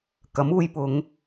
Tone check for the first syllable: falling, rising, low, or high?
rising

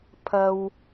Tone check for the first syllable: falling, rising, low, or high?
high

